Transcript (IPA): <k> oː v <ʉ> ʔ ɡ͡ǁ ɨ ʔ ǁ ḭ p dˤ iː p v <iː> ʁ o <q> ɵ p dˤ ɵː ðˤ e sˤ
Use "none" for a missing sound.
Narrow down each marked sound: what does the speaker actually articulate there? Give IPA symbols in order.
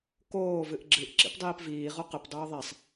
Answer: k, ɨ, iː, q

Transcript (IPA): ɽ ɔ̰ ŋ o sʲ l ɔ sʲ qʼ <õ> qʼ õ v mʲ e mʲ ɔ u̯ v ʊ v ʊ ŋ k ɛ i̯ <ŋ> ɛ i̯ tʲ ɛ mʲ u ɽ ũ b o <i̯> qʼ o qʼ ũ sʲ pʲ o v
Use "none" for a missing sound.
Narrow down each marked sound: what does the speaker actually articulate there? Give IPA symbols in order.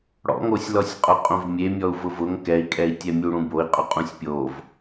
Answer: o, kʼ, i̯

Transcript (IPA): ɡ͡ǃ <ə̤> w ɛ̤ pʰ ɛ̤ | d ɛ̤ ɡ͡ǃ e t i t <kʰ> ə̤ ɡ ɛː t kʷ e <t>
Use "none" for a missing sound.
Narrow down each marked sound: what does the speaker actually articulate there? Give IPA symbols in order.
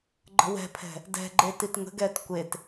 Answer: ə̤, ŋ, t

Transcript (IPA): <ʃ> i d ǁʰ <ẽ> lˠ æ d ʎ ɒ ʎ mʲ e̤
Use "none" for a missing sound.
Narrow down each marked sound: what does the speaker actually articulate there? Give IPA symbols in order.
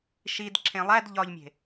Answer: ʃ, ẽ

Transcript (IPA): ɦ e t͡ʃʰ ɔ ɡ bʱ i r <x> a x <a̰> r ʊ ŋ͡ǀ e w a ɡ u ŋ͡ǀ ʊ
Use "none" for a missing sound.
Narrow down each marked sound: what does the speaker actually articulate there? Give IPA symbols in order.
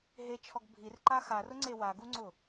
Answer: ǃ, a

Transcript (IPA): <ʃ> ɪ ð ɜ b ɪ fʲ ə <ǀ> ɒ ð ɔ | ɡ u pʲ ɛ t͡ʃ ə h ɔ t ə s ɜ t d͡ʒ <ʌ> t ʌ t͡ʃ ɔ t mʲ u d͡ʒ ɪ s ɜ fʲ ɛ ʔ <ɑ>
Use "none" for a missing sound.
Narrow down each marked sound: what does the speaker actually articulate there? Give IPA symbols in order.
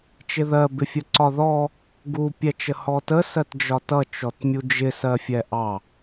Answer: t͡ʃ, ǀ, ɒ, ɑ

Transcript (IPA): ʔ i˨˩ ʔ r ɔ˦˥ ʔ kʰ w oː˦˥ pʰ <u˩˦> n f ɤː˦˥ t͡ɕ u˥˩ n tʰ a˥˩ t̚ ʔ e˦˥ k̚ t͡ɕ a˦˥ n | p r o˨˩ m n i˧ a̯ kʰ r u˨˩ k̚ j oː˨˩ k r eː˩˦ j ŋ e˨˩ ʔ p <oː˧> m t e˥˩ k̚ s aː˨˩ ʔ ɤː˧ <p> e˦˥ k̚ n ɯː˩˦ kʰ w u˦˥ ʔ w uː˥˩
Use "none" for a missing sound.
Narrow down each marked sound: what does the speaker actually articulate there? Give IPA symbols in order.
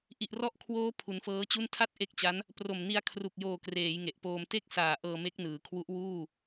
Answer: u˩˦, oː˧, m

